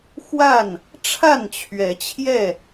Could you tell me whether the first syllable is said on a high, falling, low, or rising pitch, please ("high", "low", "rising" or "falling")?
falling